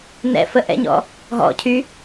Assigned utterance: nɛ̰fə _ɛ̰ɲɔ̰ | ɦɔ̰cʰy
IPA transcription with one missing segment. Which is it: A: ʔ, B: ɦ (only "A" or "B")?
A